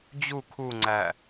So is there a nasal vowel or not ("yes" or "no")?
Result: no